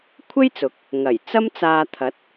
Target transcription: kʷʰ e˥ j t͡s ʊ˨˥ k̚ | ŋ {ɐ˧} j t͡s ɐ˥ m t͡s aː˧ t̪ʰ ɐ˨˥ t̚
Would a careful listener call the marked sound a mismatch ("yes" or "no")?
yes